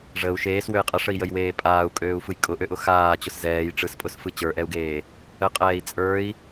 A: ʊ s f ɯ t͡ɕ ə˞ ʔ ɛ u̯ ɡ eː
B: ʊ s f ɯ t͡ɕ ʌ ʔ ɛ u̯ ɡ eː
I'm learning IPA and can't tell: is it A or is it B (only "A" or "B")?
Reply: A